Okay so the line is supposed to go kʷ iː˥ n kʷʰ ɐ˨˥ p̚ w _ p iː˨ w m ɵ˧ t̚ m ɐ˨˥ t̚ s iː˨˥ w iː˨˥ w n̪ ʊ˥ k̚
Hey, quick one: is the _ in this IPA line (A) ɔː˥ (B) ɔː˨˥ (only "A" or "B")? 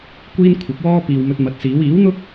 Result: A